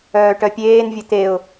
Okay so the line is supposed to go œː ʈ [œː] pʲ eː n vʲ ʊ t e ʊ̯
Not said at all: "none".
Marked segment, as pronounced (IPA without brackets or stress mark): œ